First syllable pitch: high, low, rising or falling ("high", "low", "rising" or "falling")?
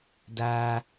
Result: high